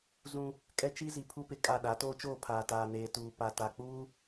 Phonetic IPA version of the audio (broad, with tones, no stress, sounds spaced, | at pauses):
z ũ˦ | kʼ ɛ˦ t͡ʃ i˦ z i˨ pʰ u˦ p ɪ˨ kʼ a˦˨ ɗ a˨˦ t oː˦ t͡ʃ oː˦˨ pʰ aː˨ t aː˨ n eː˨ t uː˨ p a˨ t a˨ k͡p uː˦